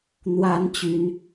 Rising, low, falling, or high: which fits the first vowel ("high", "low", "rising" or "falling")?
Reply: rising